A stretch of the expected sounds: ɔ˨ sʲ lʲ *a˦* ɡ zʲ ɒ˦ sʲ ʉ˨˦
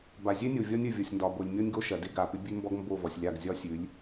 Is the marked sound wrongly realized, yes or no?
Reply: yes